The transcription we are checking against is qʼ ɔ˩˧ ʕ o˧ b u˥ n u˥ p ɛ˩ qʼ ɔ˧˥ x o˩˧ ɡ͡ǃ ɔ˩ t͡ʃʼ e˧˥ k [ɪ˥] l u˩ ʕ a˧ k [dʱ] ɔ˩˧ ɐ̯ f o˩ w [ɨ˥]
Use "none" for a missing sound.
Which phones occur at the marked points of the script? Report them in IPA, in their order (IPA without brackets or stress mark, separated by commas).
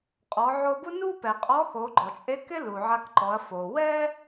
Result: ɪ˥, ǃ, ɛ˥